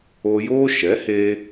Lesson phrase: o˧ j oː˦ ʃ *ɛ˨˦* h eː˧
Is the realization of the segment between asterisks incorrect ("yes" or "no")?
no